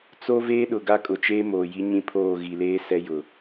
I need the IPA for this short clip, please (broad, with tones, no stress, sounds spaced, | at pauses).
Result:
t͡s o˦ v eː˦ ɗ ʊ˨ ɡ a˦ kʼ ʊ˨ t͡ʃ eː˦ m oː˨ j i˦ ɲ ĩ˦ pʰ oː˦˨ ɣ i˨ l eː˦ s ɛ˦ j ʊ˨